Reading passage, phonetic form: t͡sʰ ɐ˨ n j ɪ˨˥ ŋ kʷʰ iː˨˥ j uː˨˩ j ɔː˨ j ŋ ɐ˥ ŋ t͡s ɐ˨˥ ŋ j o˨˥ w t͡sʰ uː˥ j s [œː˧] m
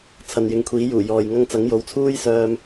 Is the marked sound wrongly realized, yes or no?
no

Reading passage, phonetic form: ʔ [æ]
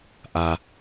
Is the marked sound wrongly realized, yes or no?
yes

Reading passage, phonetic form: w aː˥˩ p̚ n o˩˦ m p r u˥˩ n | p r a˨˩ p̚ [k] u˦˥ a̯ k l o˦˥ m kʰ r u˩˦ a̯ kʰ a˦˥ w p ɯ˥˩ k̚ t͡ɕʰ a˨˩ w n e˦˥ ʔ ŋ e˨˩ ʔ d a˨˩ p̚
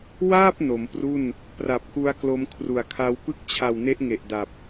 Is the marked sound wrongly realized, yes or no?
no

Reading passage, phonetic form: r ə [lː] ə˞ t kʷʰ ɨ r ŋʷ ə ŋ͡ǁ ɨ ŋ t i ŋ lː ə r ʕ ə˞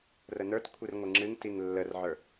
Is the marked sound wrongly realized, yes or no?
yes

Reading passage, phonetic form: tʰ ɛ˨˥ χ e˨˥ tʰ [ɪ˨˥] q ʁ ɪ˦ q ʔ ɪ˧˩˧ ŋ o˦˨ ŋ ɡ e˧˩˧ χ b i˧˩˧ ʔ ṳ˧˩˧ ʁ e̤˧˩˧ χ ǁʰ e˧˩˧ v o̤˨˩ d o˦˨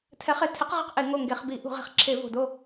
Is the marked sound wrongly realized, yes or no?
no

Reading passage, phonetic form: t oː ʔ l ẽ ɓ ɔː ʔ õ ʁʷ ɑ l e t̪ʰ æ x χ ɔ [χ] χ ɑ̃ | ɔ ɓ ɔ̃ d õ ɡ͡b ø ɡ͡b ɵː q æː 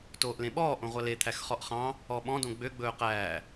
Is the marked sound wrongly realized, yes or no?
yes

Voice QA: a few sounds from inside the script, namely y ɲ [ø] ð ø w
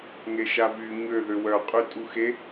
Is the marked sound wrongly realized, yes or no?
no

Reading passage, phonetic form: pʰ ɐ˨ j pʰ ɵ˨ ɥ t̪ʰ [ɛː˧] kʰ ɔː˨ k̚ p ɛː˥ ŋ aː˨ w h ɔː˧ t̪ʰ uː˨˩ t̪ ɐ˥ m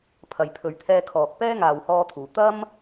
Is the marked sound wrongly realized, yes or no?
no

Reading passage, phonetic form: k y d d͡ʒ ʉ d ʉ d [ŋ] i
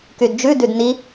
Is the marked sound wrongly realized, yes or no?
yes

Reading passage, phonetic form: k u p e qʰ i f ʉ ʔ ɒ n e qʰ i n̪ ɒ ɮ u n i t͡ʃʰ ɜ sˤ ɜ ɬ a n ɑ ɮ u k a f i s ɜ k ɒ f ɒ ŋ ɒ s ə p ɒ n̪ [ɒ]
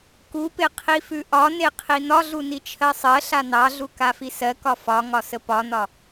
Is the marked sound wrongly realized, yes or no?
no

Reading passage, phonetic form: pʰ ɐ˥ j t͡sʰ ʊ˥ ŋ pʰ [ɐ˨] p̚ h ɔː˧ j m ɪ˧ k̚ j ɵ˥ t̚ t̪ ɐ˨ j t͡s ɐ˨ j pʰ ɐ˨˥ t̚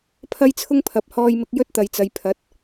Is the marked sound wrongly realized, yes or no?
no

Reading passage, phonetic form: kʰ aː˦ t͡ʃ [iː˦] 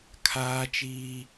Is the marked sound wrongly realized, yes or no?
no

